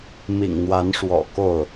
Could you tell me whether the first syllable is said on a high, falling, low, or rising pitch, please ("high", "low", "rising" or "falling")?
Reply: low